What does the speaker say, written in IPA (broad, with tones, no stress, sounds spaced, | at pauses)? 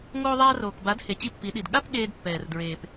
ŋ oː˧ ðˤ aː˧ r oː˨ k b a˨˦ d h e˨ t͡ɕ i˦ pː i˨˦ ɗ i˨ d ɠ a˦ p ɠ eː˧ d pː ɛː˨ r d ɹ eː˨ p